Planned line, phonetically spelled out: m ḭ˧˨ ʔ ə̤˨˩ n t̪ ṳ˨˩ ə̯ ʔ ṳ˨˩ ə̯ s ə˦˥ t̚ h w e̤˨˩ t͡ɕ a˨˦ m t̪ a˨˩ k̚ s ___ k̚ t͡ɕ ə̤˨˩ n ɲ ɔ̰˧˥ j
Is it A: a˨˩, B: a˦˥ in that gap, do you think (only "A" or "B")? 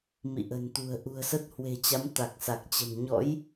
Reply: A